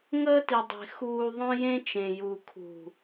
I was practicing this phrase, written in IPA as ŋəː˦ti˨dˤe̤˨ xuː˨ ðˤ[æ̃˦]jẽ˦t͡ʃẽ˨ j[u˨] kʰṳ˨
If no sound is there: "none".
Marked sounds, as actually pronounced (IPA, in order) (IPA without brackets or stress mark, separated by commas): œ̃˦, u˨